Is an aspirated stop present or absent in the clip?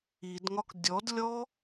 absent